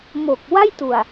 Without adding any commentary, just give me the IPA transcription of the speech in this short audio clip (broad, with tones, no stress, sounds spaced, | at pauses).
m o˨˩ k̚ w a˥˩ j t u˨˩ a̯